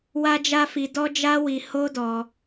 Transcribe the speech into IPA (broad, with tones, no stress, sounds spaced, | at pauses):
w a˦ d͡ʒ a˦ f i˧ d ɔ˦ d͡ʒ a˦ w i˧ h o˦ d ɔ˧